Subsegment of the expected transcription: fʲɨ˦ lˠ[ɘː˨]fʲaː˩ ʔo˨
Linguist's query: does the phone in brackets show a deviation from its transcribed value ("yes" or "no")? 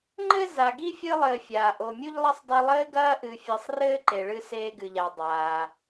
no